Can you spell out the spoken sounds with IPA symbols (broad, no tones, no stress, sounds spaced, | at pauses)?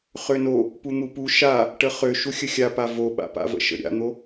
χ ø n o | p u n̪ u p u ʃ a | ʈ ə χ ø ʃ u xʲ ə xʲ a p a v o ɓ a̰ p a̰ v ə̰ ʃ ə̰ ɾʲ a̰ n̪ o